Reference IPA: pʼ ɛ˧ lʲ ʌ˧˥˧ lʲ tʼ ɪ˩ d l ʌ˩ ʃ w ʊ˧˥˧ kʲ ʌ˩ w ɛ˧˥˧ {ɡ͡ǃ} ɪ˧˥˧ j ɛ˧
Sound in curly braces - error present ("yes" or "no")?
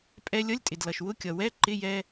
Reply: yes